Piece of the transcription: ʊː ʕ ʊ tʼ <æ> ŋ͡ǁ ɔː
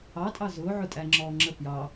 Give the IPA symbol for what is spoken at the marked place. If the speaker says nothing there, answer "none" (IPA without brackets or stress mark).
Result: æ